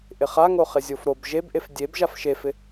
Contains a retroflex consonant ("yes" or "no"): no